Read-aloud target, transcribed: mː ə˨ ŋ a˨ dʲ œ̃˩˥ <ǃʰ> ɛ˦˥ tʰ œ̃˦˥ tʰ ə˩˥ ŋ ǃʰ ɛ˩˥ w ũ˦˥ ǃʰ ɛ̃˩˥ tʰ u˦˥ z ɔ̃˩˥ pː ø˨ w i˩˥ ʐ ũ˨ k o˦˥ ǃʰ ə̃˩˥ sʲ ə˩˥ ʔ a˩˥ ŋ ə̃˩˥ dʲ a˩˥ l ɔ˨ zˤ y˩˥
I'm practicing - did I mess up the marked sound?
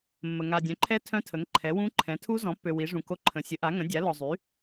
no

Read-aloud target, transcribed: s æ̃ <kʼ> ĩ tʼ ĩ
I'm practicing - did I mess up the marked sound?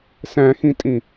yes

